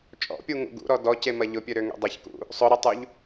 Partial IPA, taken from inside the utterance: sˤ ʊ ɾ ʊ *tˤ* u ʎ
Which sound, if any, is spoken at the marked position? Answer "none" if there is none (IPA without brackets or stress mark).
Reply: tˤ